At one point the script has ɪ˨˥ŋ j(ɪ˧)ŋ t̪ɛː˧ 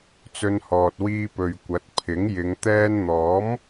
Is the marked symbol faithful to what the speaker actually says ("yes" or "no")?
no